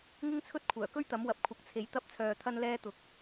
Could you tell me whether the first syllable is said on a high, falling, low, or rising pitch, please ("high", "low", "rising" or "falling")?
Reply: high